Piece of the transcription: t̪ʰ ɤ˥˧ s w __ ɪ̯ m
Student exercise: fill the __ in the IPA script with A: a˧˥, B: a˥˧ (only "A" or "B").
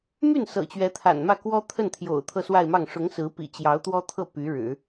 B